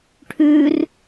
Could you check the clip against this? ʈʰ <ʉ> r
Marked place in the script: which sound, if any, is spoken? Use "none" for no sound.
ʉ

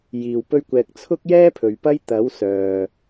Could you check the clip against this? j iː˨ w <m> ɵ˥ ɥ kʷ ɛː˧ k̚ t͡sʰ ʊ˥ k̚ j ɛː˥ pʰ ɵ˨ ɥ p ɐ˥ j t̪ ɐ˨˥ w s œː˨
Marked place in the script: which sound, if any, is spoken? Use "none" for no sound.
p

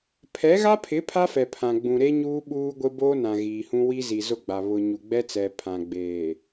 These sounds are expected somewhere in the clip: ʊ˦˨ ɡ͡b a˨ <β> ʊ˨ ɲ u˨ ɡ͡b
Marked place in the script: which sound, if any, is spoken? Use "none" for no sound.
β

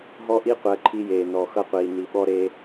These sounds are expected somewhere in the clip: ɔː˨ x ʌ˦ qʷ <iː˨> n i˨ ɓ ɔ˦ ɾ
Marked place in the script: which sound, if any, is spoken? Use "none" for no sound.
iː˨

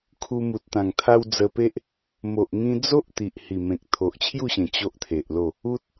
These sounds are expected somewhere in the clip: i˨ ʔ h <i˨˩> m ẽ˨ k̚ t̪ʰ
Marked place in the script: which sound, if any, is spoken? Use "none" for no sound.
i˨˩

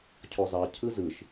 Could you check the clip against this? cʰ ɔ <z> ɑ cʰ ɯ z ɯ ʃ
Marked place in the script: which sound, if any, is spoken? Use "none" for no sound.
z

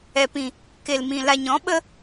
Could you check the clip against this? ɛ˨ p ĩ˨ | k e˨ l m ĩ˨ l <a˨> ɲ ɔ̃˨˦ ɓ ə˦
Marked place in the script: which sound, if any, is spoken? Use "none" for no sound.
a˨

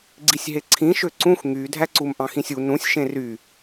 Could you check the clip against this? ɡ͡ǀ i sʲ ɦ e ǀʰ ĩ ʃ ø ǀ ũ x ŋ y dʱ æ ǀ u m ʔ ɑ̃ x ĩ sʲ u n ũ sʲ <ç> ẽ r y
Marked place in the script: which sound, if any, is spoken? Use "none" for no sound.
ʃ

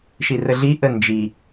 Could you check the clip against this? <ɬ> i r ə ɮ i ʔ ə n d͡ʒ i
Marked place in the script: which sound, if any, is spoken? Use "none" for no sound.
ʃ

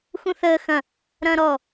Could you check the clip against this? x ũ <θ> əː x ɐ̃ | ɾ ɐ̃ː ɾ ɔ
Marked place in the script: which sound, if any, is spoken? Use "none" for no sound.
θ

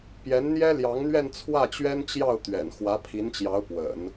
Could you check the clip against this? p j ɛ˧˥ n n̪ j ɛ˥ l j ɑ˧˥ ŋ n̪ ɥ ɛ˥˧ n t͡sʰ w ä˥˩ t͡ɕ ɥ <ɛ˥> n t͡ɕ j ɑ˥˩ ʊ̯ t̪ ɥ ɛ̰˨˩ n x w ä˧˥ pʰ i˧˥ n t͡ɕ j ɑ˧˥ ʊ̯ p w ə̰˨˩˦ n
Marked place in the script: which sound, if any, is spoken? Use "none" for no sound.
ɛ˥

